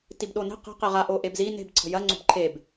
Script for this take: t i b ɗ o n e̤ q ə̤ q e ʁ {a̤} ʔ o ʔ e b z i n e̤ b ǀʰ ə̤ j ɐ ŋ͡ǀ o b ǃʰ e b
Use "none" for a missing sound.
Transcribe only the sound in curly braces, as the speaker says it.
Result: a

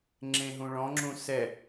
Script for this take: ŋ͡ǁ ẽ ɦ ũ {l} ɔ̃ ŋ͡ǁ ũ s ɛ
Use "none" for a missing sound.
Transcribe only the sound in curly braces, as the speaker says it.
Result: ɭ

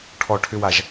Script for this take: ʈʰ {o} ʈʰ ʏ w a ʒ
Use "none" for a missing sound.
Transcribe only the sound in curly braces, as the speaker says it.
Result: ɔ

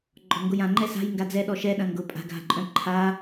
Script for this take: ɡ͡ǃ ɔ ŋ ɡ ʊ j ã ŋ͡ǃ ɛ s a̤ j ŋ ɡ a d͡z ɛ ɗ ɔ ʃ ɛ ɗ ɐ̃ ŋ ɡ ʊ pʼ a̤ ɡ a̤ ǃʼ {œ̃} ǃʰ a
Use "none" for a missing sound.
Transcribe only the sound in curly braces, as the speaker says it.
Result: œ̃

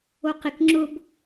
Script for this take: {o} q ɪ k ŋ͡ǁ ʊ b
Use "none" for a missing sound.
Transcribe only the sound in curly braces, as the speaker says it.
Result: o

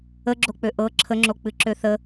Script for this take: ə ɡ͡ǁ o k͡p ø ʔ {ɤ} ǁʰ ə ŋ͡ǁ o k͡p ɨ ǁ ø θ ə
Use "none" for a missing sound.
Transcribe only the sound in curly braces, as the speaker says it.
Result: ɤ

